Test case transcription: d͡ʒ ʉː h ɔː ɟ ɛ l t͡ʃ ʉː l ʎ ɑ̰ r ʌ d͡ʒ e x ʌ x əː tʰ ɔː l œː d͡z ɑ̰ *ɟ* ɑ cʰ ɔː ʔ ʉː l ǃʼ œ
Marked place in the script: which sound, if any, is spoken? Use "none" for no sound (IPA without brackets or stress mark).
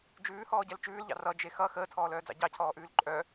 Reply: ɟ